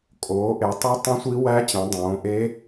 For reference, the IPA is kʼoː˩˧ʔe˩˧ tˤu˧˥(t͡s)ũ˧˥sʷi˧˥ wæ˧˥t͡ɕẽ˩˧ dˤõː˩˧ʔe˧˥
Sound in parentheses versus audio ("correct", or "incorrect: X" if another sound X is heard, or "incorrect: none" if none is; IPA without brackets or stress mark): incorrect: tˤ